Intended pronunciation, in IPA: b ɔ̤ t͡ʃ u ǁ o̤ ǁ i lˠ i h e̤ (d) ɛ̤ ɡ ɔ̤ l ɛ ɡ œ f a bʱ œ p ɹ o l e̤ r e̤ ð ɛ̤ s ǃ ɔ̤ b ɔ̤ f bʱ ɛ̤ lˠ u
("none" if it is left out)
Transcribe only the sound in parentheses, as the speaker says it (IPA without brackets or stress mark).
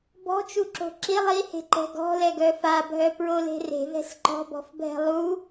ǃ